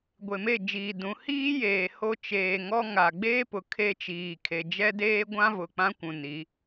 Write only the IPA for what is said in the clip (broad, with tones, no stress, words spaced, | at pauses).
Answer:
ɡʷe˨me˦˨d͡ʒiː˨dũ˨˦ hiː˦jeː˨ ho˦ t͡ʃeː˨ŋɔ˦ ŋa˨ ɡ͡beː˦pʊ˨ kʰe˦t͡ʃiː˨kʰe˨ d͡ʒɛ˦deː˦ɡʷã˦vʊ˨ k͡pã˦kʷũ˨ ni˨˦